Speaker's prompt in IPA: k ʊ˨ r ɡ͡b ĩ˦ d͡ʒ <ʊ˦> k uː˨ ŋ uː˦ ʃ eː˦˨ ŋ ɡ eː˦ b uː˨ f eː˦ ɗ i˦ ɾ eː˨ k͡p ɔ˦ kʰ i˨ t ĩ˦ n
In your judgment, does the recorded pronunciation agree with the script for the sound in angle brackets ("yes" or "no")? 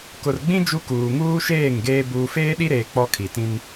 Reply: no